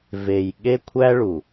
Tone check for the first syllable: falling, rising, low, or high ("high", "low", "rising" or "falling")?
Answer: low